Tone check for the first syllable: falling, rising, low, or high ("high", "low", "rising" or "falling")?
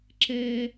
high